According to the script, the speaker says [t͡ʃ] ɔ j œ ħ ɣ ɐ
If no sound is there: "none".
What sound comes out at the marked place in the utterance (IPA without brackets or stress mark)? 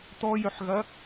t̪